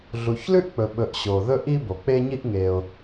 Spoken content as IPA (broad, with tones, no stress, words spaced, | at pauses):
ɮu˨çlʉ˥ʔk͡pɵ˨ ɓɵ˨ʔɕo˩ðɵ˦ ʔi˦bo˩k͡pe˦ɲi˦ʔ ŋe˨ʊ̯